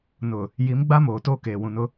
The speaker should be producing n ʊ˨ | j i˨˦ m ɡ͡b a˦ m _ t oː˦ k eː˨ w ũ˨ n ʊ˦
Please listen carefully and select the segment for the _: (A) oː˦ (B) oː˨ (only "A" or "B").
B